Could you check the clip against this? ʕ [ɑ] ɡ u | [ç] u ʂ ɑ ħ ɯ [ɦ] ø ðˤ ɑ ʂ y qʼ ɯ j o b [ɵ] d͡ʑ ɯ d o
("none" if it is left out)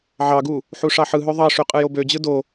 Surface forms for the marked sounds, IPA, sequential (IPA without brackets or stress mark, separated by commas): ɑ, ħ, ɦ, ø